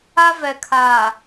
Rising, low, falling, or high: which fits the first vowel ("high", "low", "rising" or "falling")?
high